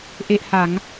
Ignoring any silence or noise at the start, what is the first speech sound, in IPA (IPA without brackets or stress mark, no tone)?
ʔ